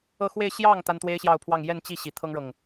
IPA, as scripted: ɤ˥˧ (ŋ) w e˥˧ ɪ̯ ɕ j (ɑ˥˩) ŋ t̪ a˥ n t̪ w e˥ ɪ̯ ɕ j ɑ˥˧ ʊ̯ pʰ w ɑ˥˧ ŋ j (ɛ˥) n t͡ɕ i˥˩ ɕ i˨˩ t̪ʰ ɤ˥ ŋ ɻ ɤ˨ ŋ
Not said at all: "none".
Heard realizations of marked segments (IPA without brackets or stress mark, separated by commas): x, ɑ˥˩, ɛ˥˧